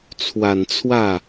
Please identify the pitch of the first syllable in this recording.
low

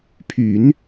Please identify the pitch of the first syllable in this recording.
low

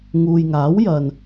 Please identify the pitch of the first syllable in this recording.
low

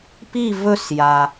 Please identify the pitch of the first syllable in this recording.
falling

